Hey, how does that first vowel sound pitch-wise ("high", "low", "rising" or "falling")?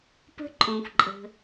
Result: high